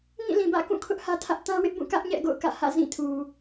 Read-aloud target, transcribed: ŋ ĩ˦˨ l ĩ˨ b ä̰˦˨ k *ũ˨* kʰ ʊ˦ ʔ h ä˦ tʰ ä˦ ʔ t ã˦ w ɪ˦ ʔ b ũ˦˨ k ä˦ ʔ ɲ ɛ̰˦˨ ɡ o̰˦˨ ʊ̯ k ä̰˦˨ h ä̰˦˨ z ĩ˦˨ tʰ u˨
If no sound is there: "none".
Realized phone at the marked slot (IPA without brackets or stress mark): ũ˦˨